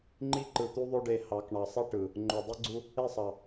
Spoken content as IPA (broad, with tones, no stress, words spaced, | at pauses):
ŋ͡ǃi˦ǃɯ˨t̪u˦ðˤo˦ ɖe˦ hɑ˨˦k ɳɑ˨sˤi˦ ʈɯ˨ | ŋ͡ǃo˨dˤi˦ɡ͡ǀu˦ | e˦˨sˤɑ˨